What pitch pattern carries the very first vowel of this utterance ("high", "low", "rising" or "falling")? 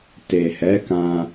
low